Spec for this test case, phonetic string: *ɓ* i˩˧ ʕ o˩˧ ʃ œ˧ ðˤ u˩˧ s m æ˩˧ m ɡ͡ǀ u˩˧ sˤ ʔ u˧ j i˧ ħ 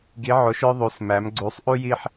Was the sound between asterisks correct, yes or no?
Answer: no